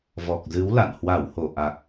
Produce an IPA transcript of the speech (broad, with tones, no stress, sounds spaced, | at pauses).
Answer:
v ɔ˨˩ k̚ z ɨ˨˦ w l a̰˧˨ n h w a˧˩ w h o˧˩ ʔ a˨˩ k̚